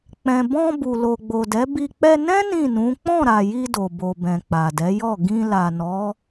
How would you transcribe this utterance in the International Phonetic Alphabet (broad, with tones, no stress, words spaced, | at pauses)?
k͡pɛ̃˨bɔ̃˧ bu˨lo˨ɡ͡bo˨dɛ˨˦ bi˧ k͡pɛ˧nɛ̃˦ nĩ˦˨nũ˨˦ k͡pɔ̃˦˨ɾa˨ji˧ do˨bo˨bɛ̃˨ k͡pa˨dɛ˨˦jɔ˦˨ ɡĩ˧ la˨nɔ˨˦